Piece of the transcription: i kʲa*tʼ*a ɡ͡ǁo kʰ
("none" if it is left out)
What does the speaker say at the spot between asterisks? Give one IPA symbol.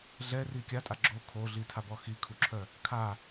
tʼ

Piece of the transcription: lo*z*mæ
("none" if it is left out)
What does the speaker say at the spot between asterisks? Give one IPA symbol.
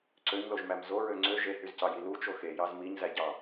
ʒ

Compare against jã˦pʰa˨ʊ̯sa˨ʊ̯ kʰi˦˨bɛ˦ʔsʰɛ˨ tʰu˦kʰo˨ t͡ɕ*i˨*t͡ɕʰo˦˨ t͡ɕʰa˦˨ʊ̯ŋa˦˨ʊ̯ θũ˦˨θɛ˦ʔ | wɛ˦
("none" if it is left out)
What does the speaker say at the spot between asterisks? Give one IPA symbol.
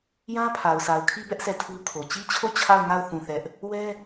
i˦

